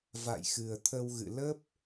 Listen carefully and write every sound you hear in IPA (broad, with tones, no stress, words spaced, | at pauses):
va̰˧˨jxɨ˨˩ə̯t̪ʰə˧wɣɨ̰˧˨ lə˦˥p̚